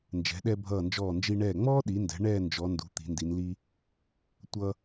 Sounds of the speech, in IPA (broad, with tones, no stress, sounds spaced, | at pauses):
n d͡ʒ ɛ̤˩˧ ɗ ɛ˧ bʱ ʌː˧˩ n d͡ʒ ɔː˧˩ n d͡ʒ i˧ ɳ ɛː˧˩ ŋ͡m ɔː˥ ɗ i˩˧ n d ɛ̤˩˧ ɳ ɛː˥˧ n d͡ʒ ɔ˩˧ n d ṳ˩˧ t̪ i̤˩˧ n d i˩˧ n l i˥ | tʷ ʌ˧